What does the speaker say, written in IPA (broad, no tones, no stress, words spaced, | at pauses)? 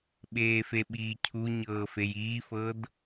ɓeːfeɓiːcʰu ɲɤːfejiːfɤd